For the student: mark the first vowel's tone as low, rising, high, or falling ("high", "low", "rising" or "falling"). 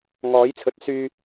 rising